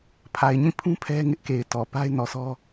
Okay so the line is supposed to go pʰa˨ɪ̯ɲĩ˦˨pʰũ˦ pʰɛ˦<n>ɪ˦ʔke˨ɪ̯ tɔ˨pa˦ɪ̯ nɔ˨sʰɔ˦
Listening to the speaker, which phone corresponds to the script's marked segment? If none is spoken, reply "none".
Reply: ŋ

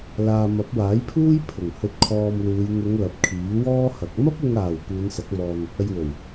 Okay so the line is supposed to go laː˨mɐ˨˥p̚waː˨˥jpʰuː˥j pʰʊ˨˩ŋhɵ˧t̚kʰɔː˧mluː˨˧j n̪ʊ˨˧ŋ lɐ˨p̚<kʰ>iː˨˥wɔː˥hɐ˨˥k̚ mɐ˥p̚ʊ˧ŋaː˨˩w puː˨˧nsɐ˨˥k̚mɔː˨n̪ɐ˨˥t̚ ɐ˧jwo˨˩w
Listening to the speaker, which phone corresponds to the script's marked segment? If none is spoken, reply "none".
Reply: kʰ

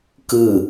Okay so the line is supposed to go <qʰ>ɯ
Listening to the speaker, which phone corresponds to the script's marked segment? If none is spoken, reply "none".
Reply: k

